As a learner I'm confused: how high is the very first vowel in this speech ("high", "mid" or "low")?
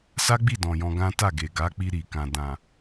low